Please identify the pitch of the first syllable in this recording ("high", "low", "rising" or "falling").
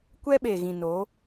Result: high